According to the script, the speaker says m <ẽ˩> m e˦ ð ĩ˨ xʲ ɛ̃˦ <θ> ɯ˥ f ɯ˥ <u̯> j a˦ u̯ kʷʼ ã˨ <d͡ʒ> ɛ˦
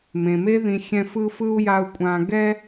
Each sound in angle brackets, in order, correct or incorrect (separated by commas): correct, incorrect, correct, incorrect